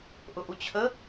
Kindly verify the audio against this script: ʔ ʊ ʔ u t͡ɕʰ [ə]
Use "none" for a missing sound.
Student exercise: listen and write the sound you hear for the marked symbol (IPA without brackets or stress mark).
ə